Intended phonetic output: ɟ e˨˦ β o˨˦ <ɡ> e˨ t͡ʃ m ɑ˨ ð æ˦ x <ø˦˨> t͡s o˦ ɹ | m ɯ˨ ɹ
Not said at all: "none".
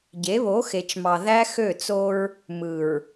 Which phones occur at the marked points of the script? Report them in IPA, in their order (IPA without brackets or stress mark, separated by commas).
x, ø˦˨